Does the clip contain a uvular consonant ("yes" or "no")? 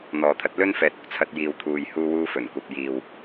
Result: no